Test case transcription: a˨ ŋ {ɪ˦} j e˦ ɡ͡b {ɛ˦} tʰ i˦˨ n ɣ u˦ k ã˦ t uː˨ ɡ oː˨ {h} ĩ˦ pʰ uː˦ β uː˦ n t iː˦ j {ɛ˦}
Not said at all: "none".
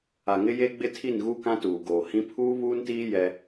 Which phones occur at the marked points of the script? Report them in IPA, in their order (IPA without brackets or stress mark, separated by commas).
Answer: ɪ˦, ɪ˦, h, ɛ˦